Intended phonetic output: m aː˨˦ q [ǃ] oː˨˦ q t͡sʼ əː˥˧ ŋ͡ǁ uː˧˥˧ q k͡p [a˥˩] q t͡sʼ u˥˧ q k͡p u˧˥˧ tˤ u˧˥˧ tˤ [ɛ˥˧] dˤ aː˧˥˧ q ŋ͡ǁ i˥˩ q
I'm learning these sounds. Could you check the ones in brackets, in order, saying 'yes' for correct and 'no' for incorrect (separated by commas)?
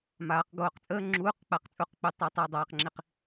no, yes, yes